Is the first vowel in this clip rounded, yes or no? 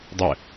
no